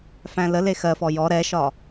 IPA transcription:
f æ̃ l ə l e x ɜ f ɔ j ɔ ɾ ɛ ʃ ɒ

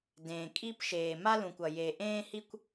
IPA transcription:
d ẽː˨ kʼ i˥ p ʃ eː˨ m a˥ l ũ˨ kʷ ʌ˨ j e˨ ʔ ẽː˥ h i˥ kʷ

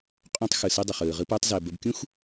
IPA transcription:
qʼ õ˧ tˤ x ɯ˨ s ɯ˦ dˤ ə˨ χ ɯː˨ ʁ ɯ˧ p əː˧ tˤ z əː˨ b ə˧ b kʲ ũ˦ x

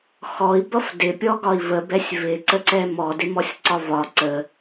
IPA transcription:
x ɔ i̯ b ʌ f d ɪ pʲ ɔ ɡ ɒ i̯ v ə b ɛ sʲ v ɪ ǀ ə ǀ ɛ m ɔ d ɪ m ɔ sʲ ǀ ɒ v ɒ ǀ ə

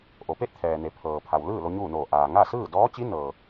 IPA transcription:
ʔ o˩˧ p eː˥˨ t̚ t̪ʰ ɛː˩ n e˩˧ pʰ ɤː˩ pʰ a˩ w l ɯː˥˨ l o˧ ɲ uː˥˨ n oː˧˩ ʔ aː˩ ŋ a˥˨ s ɯː˥˨ d ɔː˧˥ t͡ɕ i˧˥ n ɤː˩

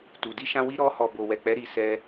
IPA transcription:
t u˨ d i˧ ʃ ã˧ w i˧ ɾ ɔ˧ h ɔ˨ b o˨ w ɛ˨ k͡p ɛ˨˦ ɾ i˧ s ɛ˧

